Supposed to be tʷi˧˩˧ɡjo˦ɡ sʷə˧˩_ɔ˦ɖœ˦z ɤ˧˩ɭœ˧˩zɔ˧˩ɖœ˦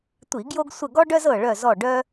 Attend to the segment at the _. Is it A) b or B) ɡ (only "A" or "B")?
B